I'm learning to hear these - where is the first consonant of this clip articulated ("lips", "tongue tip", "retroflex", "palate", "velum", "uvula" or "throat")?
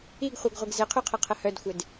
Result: velum